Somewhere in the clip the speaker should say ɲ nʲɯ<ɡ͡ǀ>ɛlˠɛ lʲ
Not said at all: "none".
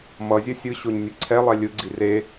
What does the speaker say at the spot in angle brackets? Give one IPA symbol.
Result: ǀʰ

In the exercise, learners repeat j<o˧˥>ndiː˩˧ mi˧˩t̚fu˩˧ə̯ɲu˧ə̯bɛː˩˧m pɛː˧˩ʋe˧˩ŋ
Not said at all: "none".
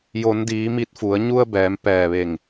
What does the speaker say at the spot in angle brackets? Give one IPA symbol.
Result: o˩˧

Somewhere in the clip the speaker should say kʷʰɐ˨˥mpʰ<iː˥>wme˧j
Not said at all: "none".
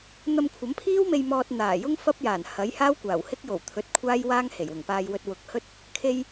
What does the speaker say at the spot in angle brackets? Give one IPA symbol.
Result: iː˥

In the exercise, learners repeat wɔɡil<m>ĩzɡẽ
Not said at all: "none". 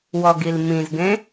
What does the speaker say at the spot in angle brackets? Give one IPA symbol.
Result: m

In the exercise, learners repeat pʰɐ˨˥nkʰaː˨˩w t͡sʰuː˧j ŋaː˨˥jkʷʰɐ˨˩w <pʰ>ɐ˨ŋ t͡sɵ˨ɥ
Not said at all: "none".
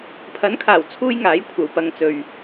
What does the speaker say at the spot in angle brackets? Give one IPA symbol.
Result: p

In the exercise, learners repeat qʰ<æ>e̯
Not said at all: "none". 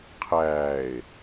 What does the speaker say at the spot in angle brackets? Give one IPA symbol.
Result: æː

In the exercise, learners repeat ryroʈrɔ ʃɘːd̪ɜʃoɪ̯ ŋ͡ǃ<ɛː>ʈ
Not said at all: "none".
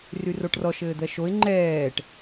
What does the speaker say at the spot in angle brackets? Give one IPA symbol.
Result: ɛː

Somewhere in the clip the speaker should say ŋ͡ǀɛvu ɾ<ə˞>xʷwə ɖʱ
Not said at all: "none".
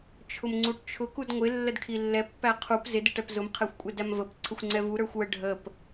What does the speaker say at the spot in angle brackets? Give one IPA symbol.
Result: ə˞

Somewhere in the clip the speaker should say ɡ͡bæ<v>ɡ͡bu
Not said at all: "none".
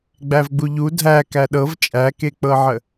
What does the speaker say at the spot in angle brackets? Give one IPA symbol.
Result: v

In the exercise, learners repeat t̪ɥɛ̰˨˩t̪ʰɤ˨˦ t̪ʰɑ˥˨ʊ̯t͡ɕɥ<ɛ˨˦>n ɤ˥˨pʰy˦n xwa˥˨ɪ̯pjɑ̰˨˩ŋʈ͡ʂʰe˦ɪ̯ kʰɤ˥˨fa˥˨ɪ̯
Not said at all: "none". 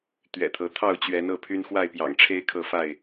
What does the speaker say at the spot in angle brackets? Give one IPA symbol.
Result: ɛ˨˦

